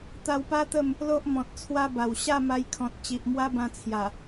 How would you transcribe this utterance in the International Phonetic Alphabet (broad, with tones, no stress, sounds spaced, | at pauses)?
t̪ a˧ w p a˦ t̪ ə˥˧ m | l o˦ ʔ m ɔ̃˨ t̚ t͡sʰ w a˧ b a˨˩ w ɕ a˥˧ m a˧ j kʰ ɔ̃˨ t̚ t͡ɕ i˨ ʔ m w a˦ b ã˧ t͡sʰ j a˨˩